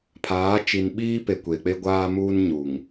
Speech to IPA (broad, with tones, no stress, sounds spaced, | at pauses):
pʰ aː˨˦ t͡ʃ i˨ n ɓ iː˦ p e˨ kʷ e˨ k͡p e˦ ɡʷ aː˦ m uː˦ n ɲ u˨ ŋ